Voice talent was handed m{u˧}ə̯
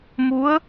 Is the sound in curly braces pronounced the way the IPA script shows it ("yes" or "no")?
no